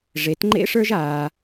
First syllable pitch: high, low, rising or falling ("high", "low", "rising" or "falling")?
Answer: rising